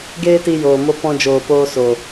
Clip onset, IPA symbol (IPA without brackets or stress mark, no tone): ɡ